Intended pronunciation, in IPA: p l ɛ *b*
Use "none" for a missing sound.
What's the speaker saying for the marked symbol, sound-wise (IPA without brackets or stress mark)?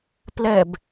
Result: b